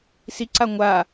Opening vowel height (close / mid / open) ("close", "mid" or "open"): close